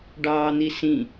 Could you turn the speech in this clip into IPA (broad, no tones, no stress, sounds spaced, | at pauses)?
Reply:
ɖ ɑː n̪ i s ĩ